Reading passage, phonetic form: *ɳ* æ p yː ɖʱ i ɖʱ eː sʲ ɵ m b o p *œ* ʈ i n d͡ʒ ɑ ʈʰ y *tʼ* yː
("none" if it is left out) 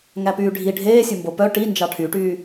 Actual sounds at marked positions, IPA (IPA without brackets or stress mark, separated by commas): ŋ, œ, ʈ